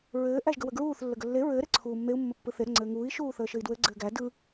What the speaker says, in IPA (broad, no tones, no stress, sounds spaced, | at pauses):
ɹ ɘː ʔ æ ʒ ɡ ə w ə ɡ ɹ uː θ lː ə ɡ ə lː e ɹ ɘː ɾ e ǀʰ uː mː e u̯ mː ə pː ɯ θ e ɾ ɘ ŋ͡ǀ ɘː ŋ uː i̯ ʃ uː θ əː ʃ ɘ i̯ d w ɘ ɡ͡ǀ ɘː ɡ æ d ɯ